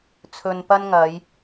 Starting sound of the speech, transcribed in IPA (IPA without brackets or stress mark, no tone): t͡sʰ